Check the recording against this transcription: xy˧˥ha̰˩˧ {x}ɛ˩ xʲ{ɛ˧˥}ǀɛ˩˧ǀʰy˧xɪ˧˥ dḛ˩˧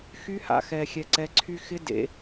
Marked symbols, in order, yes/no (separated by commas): yes, no